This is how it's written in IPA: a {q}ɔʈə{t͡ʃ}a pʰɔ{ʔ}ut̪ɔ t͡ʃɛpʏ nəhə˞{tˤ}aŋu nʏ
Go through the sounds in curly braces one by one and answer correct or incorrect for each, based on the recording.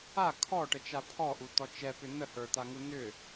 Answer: incorrect, correct, correct, incorrect

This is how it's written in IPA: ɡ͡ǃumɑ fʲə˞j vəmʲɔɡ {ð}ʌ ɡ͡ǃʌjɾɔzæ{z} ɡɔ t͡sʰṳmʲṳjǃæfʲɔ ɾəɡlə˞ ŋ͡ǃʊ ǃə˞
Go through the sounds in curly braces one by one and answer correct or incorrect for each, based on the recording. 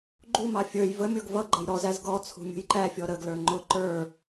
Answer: incorrect, correct

